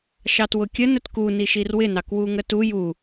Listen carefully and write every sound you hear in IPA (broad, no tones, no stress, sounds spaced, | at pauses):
ʃ ɑ t w ʊ kʲ ə n ə t k u n i ʃ i r w ɪ n ɑ k w u ŋ ə t u j u